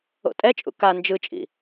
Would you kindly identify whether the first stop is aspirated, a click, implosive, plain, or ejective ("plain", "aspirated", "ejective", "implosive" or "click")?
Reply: ejective